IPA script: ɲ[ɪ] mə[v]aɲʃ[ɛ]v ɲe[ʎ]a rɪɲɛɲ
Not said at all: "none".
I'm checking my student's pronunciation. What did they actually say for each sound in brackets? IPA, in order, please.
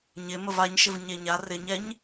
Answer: ɪ, v, ɪ, ɲ

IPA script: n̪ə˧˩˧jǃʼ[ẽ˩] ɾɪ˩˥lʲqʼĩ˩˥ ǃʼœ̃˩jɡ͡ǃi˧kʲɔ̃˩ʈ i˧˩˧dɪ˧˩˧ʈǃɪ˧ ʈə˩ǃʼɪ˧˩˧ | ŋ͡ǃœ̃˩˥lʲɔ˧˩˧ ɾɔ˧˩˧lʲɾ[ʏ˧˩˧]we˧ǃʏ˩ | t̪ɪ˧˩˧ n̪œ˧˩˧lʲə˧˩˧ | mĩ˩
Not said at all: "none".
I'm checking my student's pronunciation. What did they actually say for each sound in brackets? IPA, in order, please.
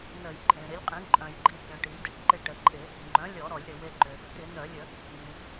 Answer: ẽ˩, ʏ˩

